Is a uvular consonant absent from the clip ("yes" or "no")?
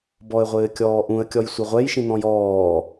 no